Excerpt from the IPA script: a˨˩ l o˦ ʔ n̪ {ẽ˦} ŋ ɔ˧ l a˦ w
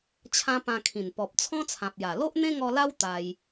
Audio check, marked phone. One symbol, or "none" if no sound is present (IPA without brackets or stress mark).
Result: ẽ˦